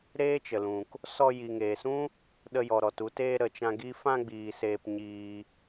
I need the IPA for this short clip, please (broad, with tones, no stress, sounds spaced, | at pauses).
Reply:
ɾ eː˦ t͡ʃ ə˨ l ũ˨ k | s ɔ˧ j i˨ ŋ eː˨ s ũ˦ | ɗ ə˧ j ɔ˨ ɾ ɔ˨ t u˧ t eː˧ ɾ ə˨ t͡ʃ ã˧ ɡ i˦ f ã˧ ɡ͡b iː˨ s eː˧ p ɲ iː˧